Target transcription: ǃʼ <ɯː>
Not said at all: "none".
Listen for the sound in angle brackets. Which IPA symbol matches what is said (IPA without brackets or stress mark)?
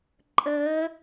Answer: əː